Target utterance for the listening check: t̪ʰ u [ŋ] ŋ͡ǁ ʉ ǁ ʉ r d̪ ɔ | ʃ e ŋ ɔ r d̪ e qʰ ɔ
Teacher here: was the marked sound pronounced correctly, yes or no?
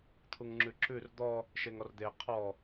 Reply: yes